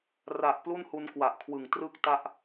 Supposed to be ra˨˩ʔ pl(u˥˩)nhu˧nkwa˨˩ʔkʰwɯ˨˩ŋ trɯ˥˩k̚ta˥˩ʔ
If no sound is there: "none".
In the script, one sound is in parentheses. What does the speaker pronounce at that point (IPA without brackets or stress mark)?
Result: u˥˩